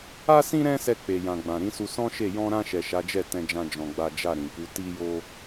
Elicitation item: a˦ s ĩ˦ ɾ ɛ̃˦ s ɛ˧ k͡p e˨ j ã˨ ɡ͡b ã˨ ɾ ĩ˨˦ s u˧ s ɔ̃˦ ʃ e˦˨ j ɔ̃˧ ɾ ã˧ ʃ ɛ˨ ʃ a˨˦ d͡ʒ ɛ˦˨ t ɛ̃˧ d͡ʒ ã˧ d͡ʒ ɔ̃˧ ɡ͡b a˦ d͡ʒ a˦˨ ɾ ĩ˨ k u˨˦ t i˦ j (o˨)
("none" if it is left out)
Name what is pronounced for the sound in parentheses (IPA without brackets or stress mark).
o˦